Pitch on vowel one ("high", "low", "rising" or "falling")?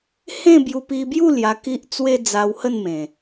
falling